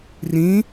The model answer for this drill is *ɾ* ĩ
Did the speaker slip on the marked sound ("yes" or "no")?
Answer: yes